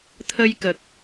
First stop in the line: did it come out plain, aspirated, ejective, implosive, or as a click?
aspirated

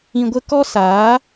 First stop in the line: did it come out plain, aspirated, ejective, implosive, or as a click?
plain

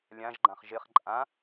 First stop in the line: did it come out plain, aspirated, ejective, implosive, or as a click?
click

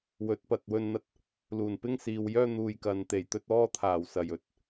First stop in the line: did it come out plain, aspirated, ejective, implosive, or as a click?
plain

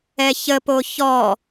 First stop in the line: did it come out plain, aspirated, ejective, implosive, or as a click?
plain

